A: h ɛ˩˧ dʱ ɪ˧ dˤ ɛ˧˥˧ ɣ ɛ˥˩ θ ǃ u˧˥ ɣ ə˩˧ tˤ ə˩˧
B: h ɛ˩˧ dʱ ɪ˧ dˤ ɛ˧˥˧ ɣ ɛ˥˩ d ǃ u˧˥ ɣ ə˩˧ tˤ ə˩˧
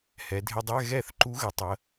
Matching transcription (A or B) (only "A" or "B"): A